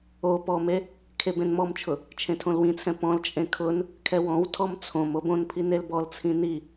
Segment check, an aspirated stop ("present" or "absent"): present